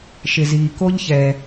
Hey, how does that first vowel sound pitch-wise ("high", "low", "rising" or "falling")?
low